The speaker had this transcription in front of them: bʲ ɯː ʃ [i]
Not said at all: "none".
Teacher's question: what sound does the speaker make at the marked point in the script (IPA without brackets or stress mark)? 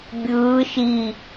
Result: i